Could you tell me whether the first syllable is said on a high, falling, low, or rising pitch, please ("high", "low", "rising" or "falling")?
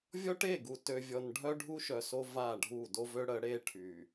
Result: high